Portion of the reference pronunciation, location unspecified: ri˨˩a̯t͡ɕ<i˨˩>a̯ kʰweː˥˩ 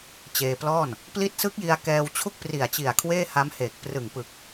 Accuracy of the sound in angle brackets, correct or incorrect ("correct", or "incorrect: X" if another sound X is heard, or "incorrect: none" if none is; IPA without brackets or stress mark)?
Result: correct